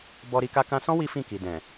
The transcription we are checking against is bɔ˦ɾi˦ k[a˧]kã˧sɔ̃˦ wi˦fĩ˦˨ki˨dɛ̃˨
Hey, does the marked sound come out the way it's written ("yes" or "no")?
yes